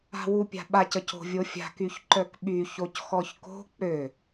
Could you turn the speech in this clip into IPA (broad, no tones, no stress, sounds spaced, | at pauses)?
a̤ w u pʲ a̤ ɓ a c ə c o̤ vʲ o fʲ a̤ k y ç ǃ œ k ɓ y ç o c x ɔ ç k o̤ k͡p ø